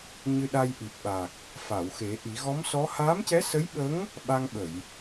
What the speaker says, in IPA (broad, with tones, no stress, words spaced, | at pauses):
ɲɨ˧ɗa˧jʔi˨˩p̚ɓa˨˩k̚ | fa˨˩˨wxe˨˩˦ʔi˨˩˦ ɣɔ˧˥msɔ˧˥ haː˧˥mcɛ˧˥sə˧˥jɓə˧˥ŋ | ɓa˧ŋɓə˨˩˨j